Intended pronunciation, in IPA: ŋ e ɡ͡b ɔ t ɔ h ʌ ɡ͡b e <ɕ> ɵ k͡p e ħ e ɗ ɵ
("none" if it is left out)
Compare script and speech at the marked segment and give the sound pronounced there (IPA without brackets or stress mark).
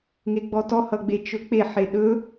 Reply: t͡ʃ